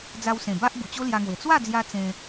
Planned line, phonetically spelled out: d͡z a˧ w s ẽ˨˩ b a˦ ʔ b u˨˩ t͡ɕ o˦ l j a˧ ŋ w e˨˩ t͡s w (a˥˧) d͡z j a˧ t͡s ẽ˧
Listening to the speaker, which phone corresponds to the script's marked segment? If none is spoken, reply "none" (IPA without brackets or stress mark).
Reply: a˥˧